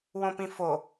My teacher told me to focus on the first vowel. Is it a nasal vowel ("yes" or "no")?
yes